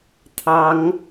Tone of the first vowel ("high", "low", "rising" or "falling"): high